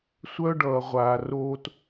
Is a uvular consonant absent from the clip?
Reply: no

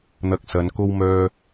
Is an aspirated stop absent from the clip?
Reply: yes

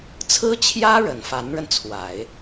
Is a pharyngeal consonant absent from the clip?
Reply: yes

